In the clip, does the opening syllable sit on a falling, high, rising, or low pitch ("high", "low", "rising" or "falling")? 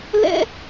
high